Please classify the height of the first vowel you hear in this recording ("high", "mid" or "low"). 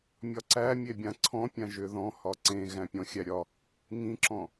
low